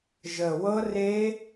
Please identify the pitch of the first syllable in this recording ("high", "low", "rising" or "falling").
low